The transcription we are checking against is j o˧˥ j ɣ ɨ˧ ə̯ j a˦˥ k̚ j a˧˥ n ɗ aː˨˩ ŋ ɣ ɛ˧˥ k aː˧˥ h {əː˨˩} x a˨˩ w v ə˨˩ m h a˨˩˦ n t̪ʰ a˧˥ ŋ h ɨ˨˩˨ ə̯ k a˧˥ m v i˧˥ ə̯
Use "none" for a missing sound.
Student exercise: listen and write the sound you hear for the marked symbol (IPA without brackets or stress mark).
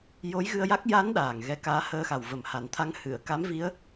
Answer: əː˧